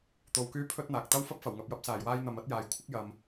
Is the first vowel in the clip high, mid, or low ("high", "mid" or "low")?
mid